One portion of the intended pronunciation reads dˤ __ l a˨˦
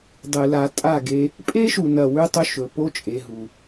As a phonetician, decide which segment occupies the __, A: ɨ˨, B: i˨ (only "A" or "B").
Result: A